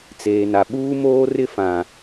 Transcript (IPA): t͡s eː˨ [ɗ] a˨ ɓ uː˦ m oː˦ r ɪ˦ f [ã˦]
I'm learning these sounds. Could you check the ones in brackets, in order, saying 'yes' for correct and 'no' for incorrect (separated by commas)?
no, no